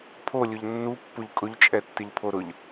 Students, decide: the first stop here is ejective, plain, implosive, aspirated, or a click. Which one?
aspirated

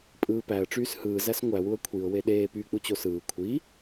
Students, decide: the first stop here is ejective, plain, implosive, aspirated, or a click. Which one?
ejective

